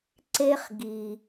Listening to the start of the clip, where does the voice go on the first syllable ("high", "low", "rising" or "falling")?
high